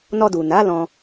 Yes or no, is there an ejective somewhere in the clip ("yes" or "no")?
no